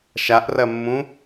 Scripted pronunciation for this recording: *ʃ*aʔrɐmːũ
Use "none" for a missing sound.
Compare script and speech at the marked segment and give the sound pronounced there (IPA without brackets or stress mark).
ʃ